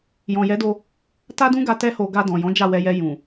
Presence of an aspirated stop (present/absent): absent